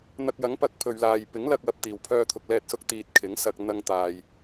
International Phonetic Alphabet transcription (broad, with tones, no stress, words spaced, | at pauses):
n̪ɐ˧k̚jɐ˨˥ŋpɐ˨˥k̚ pʰɵ˨ɥlaː˨j pɪ˨˥ŋlɐ˧k̚ wɐ˧p̚t̪iː˨w pʰœː˧t̪ʰʊ˨k̚lɛː˧t̚sʊ˧k̚ t̪iː˨t̚ kʰɪ˨˥ŋsɐ˧k̚ n̪ɐ˧ŋt̪aː˨j